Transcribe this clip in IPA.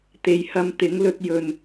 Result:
t̪e˨˧jhɐ˧mt̪ɪ˨˥ŋlɵ˧t̚ jɵ˨n

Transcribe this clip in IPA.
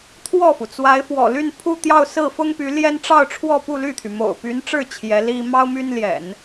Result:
t̪ʰwɔ˥˩fu˩ t͡swa˧˥ɪ̯fwɔ̰˨˩ ly˥˧npʰu˥˧ t̪jɑ˥˧ʊ̯sɹ̩˥˩fʊ˥ŋpy˧˥ ljɛ˥n ʈ͡ʂɑ˥˧ʊ̯ʈ͡ʂʰwɔ˥˧pu˥˧ ly˥˩t̪ʰy˩ mo̰˨˩ʊ̯py˧˥nʈ͡ʂɻ̩˥˩ t͡ɕʰjɛ˧˥li˥ mɑ˥ʊ̯my˥nljɛ̰˨˩˦n

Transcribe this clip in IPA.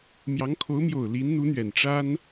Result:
mjɑ˧˥ŋkʰo˧˥ʊ̯mjo˨˩ʊ̯ li˧˥nn̪u˧˥n̪ɥɛ˨˩n ʈ͡ʂa˥n

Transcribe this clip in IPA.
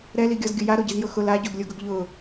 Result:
ɾɛliɡʲɔzɡʲʊ jaɾoɟizjʊ xʊl aɟoɡlʲoɡʊɡ ʎʊ

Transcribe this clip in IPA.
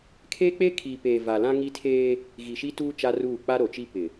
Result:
kʰeː˦k͡peː˦ kʰiː˨peː˨ va˨lã˦ŋi˦ tʰeː˦ | ɣi˨ʃi˦tuː˦ t͡ʃa˦ruː˦˨ k͡pa˦ɾo˨t͡ʃi˦ pɪ˨

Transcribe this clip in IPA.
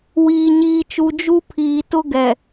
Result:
wiː˨ɲiː˨t͡ʃu˨ d͡ʒu˦pʰiː˨tʊ˦ɡɛ˨

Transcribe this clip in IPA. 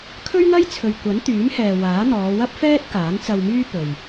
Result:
kʰɵ˥ɥŋɐ˥j t͡sʰɵ˨ɥ kʷɐ˨˥nt̪yː˨˥mhɛː˨ waː˨˥n̪ɔː˨˧ wɐ˥p̚fɛː˥t̚ kaː˨˥nt͡sɐ˧wmyː˥ pɵ˨ɥ

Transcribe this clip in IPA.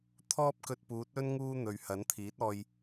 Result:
t̪ʰɔː˥p̚kɵ˧t̚puː˨˥t̚ɵ˥n ŋuː˥n̪ɵ˨ɥ hɐ˨˥nt̪ʰiː˨˥t̚ɔː˧j

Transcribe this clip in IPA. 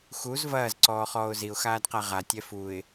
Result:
xuz vɐːz ǀɔːχɔːʊ̯ziʊ̯ xaːdqaʁa tʲɛfuɪ̯

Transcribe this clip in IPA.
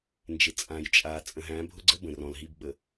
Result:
nd͡ʒɪ˨ t͡sʼã˨j t͡ʃʼa˨ t͡sʼə̃˨ɦæ̃˨˦bʱʊ˦ɡ͡ǀə˦ bə̃˨rɔ̃˨lɦi˦˨b ɓə˨

